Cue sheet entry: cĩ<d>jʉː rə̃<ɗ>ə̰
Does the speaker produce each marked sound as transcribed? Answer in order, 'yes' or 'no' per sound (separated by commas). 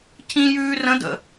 no, no